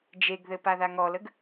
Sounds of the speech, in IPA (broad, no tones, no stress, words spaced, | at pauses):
d͡ʒeɡðɘ paðaŋɔləɡ